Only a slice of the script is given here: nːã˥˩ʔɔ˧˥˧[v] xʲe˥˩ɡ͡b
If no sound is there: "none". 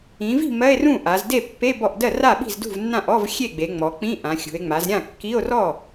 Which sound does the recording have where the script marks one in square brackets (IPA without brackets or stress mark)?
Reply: v